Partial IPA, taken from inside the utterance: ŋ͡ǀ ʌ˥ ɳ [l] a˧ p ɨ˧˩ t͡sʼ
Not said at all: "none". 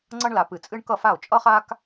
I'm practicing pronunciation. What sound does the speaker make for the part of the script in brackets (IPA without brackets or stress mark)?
l